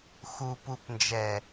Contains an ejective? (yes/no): no